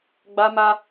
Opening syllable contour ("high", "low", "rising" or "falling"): high